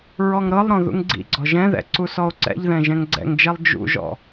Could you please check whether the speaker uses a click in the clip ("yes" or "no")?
yes